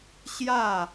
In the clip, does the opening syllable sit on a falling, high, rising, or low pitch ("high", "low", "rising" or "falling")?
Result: falling